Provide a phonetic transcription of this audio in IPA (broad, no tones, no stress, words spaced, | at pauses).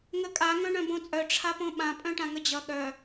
ŋəkʼa ŋœ̃ɳœ̃bõt͡sʼœ ʈ͡ʂʰapõɓã pʼœ̃ʈãŋəd͡ʑʌ ɠœ